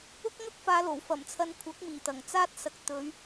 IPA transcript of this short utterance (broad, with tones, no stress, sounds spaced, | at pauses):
ʊ˥ k̚ ŋ ɐ˥ k̚ f aː˨˧ l o˨˩ w f ɐ˨˩ m t͡sʰ ɐ˨˧ n kʷʰ ɐ˨˥ k̚ m iː˨˩ t̪ ɐ˨˩ ŋ t͡s aː˥ t̚ s ɐ˨˥ k̚ t̪ ɵ˨˧ ɥ